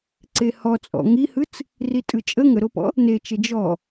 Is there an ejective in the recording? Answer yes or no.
yes